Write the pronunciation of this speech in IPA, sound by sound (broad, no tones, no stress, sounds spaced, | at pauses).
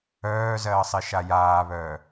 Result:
œː z ɜː sˤ i ʃ a j aː β œː